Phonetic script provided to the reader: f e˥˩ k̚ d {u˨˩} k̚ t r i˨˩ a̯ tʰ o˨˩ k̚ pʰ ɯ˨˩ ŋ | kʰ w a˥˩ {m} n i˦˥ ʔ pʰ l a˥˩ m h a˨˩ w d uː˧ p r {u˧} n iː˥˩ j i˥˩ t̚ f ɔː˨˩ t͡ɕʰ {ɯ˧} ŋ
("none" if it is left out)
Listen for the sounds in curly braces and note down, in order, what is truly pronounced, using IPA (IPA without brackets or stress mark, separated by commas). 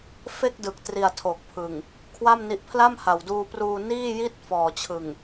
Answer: ɯ˨˩, m, uː˧, ɯ˨˩